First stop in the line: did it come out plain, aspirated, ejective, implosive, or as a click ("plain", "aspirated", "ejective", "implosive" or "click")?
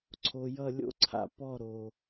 click